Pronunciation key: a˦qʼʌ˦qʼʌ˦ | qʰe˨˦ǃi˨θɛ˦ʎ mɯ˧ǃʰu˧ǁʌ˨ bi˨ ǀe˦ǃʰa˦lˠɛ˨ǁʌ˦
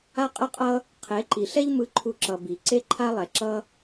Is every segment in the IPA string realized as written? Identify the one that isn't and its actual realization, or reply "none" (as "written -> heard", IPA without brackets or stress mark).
θ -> ɬ